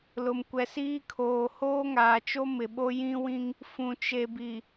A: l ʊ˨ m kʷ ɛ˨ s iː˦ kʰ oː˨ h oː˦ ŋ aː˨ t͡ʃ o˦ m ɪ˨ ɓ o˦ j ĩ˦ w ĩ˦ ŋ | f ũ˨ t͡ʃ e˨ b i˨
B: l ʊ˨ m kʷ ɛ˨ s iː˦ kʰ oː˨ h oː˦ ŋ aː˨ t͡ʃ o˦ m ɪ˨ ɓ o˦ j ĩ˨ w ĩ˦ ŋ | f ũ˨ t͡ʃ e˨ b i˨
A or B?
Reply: A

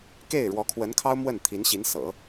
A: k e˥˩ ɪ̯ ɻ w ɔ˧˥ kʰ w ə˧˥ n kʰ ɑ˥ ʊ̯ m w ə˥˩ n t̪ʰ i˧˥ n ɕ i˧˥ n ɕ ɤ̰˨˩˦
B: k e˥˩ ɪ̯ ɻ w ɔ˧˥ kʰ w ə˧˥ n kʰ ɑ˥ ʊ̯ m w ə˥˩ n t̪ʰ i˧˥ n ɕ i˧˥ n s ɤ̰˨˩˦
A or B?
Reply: B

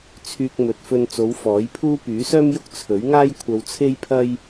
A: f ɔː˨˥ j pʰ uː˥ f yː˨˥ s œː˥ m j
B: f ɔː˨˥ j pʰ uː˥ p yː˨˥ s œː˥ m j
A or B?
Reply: B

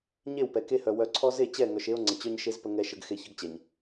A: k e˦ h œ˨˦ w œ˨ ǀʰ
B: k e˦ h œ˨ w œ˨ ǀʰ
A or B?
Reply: B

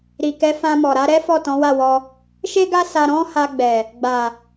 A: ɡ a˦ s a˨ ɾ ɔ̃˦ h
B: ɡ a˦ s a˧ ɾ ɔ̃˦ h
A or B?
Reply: B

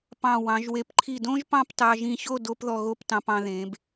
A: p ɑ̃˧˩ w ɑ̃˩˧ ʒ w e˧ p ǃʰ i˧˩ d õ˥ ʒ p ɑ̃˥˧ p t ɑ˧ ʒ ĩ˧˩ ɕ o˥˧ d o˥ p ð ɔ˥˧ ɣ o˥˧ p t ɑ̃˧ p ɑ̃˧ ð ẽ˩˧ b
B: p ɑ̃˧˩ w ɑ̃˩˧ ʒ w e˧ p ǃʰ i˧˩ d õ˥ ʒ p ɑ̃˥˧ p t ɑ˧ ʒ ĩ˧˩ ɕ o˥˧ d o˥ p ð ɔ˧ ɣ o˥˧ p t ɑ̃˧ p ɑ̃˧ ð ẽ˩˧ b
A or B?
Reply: B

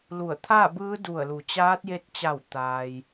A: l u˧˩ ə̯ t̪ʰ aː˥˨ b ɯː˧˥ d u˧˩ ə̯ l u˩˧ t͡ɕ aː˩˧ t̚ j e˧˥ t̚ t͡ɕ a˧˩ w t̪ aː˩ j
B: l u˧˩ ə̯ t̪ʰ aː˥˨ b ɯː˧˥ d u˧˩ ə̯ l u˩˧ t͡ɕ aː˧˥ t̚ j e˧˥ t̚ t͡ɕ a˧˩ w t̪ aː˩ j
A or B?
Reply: B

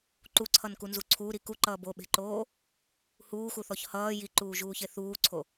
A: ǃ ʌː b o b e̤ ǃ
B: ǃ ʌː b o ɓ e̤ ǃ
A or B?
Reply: B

